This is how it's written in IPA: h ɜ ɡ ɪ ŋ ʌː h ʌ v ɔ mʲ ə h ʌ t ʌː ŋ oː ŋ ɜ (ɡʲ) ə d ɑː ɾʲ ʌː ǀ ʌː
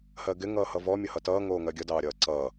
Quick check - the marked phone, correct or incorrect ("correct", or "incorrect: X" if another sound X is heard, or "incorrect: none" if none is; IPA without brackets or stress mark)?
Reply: correct